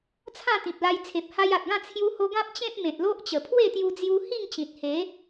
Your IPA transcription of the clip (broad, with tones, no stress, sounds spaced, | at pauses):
t͡sʰ ã˥˧ t̪ ĩ˨ p̚ l a˧ j t͡sʰ e˨ p̚ h a˧ j a˨ t̚ ɡ ã˥˧ t͡sʰ j u˦ h o˦ ɡ ã˦ p̚ t͡ɕ ẽ˦ p̚ m ẽ˨ t̚ l o˦ ʔ t͡ɕ ə˨˩ pʰ w e˥˧ t̪ j u˧ d͡z j u˧ h i˥˧ ŋ t͡ɕ ĩ˨ t̚ h e˨˦